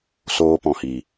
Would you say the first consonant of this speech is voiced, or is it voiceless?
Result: voiceless